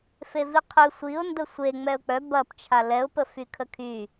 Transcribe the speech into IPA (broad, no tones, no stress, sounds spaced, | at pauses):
f e v i qʰ ø sʷ i ʊ̯ n d ə sʷ e ŋ͡m ɛ ʊ̯ k͡p œ b ɐ p t͡ʃʰ a l ɛ ʊ̯ p ə f y kʰ ə kʰ y